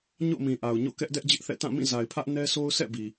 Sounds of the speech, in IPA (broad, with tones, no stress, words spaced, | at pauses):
ɲo̰˦˨mĩ˨ʔa˨ʊ̯ɲo̰˦˨ kɛ˦ʔ dɛ˦ʔd͡ʑɪ˦ʔθɛ̰˦˨ tã˦˨mĩ˦˨za˨ɪ̯pʰä˦ʔ nɛ˦so˦ʊ̯ sɛ̰˦˨bi˨